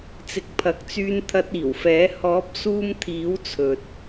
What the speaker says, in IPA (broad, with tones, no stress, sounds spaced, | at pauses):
t͡s ɪ˨˥ k̚ pʰ ɐ˨˥ k̚ t͡s yː˧ n t̪ʰ ɐ˧ t̚ iː˨˩ w f ɛː˨˥ h ɔː˨˥ p̚ s uː˧ m t̪ʰ iː˨˥ w t͡sʰ ɵ˨ t̚